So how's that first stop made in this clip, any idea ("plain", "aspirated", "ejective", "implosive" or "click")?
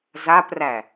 plain